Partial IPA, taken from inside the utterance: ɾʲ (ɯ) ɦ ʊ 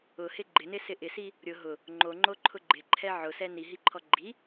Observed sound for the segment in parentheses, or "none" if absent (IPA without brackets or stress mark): ʊ